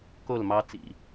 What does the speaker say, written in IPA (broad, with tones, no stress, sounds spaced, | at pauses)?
k o˦˨ l m ɑ˦ t͡s ḭ˨